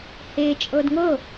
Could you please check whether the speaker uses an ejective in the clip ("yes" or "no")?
yes